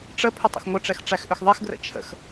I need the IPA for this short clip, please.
ʈ͡ʂə pʰʏtˤə̰xŋʷə ʈ͡ʂɛxʈ͡ʂæxʔʏxðˤex ɡrə̰t͡ʃʰə̰x

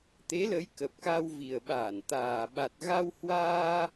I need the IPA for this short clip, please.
t̪e˨˦lə˨˦j kə˨˩p̚ka˧w vi˨˩ə̯ɓaː˧˩n t̪aː˨˩ɓa˨˩t̚ ɣa˧whwaː˧

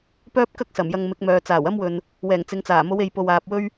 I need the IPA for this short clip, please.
pœː˥p̚kɐ˥k̚ sɐ˨˩mjɐ˧ŋmɪ˨˥k̚mœː˨ t͡saː˨˩wɐ˥mwɵ˨n | wɛː˨˩ŋt͡sɪ˨˧ŋt͡saː˨˩ mo˨˧we˨j po˨waː˨p̚wɵ˥ɥ

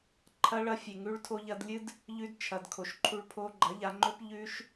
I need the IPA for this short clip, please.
ǃʰɐ˧ɭɐ˧fʲe˨ ŋʉ˧ɭtʰo˧ʎɐ˧dlʲɨ˦d | ʎʉ˧d t͡ʃʰɐ˨dkʰo˨ʃǃʰu˧ɭ pʰo˧ɡ͡ǃɐ˨˦ʎa˧ ŋ͡ǃɵ˦p ʎʉ˦ʃ

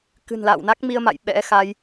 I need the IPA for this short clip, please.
kɨ̤˨˩nla̰ː˧˨wna˦˥k̚ mi˧ə̯ma̰˧˨j ɓɛ̰˧˥xa˧j

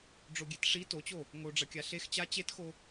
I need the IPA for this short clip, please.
ɖ͡ʐoɡʲetʂi tot͡ɕo | ŋoɖ͡ʐɐkʲa ɬex t͡ɕa t͡ɕetxo

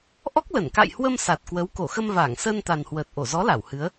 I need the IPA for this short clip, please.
ʔɔ˦˥k̚lə˧˩n ka̰˧˨jhwə˧m sa˨˩t̚kwə˨˦w ko˧˩xə˧m vaː˧˩ŋsəː˧nt̪a˨˩nhwəː˨˩t̚ ʔo˧˩zɔ˨˦la˧˩w hɨ˨˦ə̯

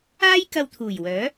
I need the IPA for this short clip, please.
aː˥j kɐ˧wt̪ʰuː˨˩jwœː˨˥

